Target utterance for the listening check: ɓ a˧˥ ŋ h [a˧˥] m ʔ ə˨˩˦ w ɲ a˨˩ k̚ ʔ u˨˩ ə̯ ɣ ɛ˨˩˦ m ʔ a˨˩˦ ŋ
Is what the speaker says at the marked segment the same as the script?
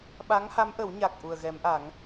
yes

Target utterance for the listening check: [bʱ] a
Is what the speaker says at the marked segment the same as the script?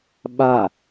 no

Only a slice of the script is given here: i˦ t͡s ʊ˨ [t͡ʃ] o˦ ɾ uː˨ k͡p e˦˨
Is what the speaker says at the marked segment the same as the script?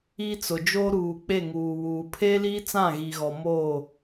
no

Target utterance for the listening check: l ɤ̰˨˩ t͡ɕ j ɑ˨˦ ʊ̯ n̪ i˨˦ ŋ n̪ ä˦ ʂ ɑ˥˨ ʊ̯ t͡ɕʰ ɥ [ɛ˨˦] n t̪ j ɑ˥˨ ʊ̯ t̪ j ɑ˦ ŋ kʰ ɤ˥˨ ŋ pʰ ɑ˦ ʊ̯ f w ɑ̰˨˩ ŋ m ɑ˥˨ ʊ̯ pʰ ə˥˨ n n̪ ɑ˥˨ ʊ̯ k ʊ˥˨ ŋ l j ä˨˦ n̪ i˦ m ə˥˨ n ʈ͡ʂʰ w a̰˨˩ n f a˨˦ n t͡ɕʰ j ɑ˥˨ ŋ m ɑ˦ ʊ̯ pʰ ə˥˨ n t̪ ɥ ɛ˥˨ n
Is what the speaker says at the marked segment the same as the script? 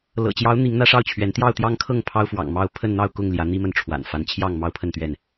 yes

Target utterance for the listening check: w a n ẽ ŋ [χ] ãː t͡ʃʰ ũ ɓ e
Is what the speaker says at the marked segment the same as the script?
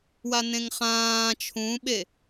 yes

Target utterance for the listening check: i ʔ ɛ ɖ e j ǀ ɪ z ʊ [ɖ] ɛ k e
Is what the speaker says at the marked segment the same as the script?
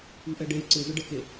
yes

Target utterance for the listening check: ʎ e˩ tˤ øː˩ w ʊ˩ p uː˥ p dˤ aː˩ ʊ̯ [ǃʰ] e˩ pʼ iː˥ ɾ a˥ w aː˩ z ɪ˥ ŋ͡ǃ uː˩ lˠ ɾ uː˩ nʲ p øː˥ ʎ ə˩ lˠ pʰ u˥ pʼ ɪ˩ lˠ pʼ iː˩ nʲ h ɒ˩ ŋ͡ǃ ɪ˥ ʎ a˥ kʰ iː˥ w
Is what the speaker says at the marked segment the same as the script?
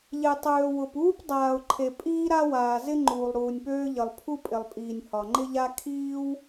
yes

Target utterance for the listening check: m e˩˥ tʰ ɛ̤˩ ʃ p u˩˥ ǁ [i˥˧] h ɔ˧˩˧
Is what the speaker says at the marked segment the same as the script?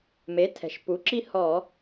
yes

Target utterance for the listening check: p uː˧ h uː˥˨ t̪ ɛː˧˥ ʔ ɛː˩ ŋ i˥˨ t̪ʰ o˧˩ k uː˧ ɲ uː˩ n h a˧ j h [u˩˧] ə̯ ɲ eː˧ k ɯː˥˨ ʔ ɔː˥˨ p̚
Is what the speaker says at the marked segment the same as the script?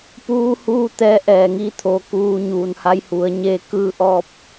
yes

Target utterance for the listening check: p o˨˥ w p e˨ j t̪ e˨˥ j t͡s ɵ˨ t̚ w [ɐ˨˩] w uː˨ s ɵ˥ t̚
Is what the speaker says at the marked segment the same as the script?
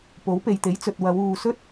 no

